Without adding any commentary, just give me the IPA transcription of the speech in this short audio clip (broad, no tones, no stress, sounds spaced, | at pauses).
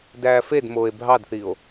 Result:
d æː f e d m oː e̯ bʱ ɑ d θ i o̯